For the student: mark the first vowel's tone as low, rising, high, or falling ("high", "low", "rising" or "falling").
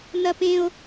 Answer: high